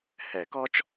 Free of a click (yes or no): yes